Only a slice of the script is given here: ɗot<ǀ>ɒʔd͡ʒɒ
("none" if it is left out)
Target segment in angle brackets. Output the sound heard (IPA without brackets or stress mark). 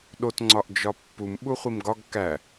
ŋ͡ǀ